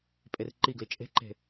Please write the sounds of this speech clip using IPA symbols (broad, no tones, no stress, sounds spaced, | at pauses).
pʼ e r ǃ i ɡ l i t͡ʃʼ e̤ ǃ e̤